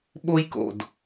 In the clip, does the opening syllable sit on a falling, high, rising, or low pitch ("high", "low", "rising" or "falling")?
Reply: high